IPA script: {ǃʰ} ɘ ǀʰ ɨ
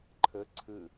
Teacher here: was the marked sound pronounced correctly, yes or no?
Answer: yes